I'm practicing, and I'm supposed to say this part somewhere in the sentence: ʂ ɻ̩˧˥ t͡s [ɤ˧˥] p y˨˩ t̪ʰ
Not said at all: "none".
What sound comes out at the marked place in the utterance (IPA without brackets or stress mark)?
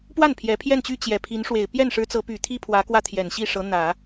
ɤ˧˥